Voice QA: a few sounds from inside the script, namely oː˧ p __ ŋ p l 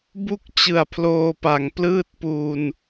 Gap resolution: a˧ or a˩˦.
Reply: a˩˦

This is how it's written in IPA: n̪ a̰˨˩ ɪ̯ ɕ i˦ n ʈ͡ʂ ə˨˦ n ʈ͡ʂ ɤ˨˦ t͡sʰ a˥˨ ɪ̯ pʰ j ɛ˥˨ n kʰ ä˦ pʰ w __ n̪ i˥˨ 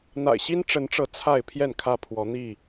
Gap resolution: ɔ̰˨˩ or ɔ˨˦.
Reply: ɔ˨˦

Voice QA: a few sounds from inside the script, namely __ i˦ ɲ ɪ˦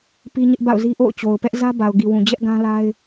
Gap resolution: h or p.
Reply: p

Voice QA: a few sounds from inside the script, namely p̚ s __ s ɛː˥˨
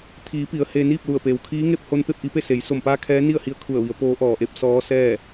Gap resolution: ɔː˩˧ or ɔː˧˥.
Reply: ɔː˧˥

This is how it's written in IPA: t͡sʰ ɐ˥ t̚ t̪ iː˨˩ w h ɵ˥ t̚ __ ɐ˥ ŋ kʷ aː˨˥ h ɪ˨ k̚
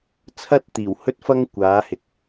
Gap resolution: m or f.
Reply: f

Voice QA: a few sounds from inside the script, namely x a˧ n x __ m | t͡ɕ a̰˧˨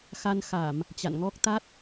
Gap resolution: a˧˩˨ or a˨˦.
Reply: a˧˩˨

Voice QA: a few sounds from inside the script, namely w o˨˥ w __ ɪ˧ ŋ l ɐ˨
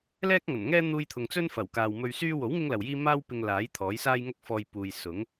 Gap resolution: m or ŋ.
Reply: ŋ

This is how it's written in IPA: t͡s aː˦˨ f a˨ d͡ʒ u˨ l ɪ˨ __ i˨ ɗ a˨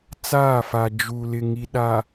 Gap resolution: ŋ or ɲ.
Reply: ŋ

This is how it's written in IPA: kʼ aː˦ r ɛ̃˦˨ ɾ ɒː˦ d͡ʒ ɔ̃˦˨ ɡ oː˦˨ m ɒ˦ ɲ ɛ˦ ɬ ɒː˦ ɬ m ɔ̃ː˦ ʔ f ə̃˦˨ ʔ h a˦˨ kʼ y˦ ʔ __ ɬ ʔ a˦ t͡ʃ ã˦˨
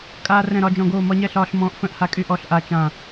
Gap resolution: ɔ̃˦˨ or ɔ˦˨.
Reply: ɔ˦˨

